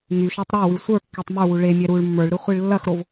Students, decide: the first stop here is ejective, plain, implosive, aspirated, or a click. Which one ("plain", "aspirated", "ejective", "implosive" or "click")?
plain